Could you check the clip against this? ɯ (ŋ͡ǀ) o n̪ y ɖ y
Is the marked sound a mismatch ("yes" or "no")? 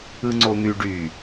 no